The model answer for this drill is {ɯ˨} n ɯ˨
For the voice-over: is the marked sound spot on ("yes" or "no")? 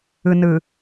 yes